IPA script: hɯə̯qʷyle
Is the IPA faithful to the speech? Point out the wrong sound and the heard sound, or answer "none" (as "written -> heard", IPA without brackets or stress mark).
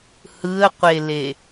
y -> e